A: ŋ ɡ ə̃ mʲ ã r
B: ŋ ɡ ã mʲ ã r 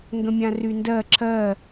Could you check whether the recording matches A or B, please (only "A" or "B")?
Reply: A